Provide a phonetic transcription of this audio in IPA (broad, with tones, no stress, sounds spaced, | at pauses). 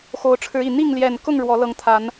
x o˨˦ ʊ̯ ʈ͡ʂʰ ɻ̩˨˦ i˨˩ n̪ i˥˨ ŋ l j ɛ˨˩ n k ʊ˥˨ ŋ ɻ w ɔ˨˦ l ɤ˨˦ ŋ t̪ʰ a˨˦ n